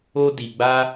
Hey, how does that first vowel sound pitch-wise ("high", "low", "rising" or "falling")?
high